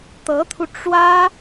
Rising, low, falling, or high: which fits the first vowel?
rising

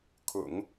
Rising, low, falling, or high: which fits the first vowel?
low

